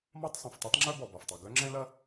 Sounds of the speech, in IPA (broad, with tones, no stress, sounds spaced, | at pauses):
m ɒ˥ tˤ sˤ ɛ̃˩ f tˤ ɛ˥ tˤ ŋ͡ǁ œ˥ b ɔ˩ b ɒ˩ f tˤ u˩ ɡ œ˥ ŋ͡ǁ ɛ̃˥ l ɐ˥